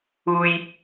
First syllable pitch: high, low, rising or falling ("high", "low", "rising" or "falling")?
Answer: low